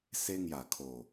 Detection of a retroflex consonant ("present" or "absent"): absent